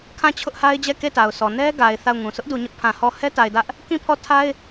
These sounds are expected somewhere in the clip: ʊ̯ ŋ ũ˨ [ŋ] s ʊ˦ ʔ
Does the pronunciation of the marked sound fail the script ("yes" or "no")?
yes